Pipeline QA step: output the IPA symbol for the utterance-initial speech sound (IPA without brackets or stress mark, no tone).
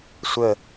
sʷ